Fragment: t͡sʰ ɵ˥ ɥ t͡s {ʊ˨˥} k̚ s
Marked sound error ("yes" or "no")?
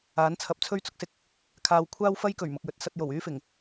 no